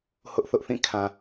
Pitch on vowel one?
high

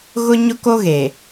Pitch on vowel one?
high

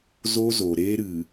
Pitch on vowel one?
high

